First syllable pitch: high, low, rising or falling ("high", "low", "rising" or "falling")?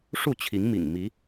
falling